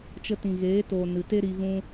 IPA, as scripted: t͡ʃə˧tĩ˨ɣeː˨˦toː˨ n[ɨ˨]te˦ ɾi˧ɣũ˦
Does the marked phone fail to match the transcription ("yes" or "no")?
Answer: no